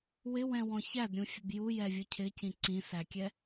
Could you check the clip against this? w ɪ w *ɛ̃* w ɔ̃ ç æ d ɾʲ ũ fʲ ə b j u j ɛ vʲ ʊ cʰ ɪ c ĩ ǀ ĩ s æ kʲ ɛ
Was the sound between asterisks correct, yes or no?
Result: yes